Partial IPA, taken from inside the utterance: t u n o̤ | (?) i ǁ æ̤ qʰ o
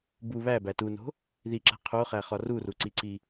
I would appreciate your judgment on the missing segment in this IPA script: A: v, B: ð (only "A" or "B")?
B